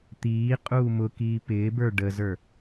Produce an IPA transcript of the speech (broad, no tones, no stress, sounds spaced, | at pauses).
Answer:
t̪ iː qʼ uː m ʊ k iː p ɪː b ə˞ ɖ ə z ə˞